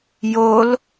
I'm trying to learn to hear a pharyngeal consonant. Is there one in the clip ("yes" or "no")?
no